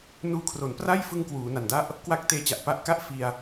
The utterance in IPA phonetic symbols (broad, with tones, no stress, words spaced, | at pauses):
nuː˧kʰro˩˦npra˥˩j fɯ˧ŋkwuː˩˦ na˨˩nda˥˩ʔ | kwa˦˥k̚teː˧t͡ɕa˨˩ʔ pa˦˥ʔka˥˩ʔ fi˧a̯